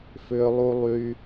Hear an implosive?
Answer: no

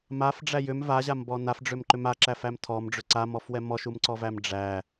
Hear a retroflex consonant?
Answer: yes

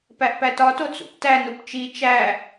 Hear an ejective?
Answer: no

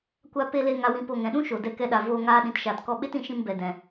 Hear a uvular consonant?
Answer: no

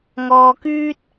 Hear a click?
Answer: no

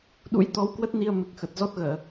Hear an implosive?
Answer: yes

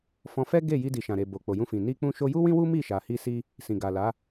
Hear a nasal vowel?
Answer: yes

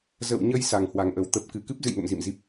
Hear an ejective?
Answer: no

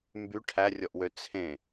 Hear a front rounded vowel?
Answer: yes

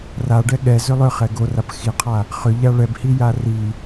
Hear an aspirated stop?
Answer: yes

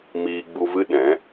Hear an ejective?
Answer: no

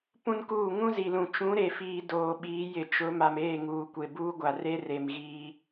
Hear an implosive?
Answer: yes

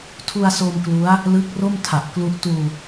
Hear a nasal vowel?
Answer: no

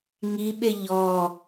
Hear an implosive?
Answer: yes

